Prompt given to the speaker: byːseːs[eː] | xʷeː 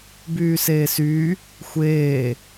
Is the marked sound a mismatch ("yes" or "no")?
yes